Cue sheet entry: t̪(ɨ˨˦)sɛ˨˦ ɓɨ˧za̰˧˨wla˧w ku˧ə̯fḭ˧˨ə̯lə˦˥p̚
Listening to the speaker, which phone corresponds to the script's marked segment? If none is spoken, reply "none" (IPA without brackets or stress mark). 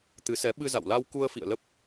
ɨ˨˦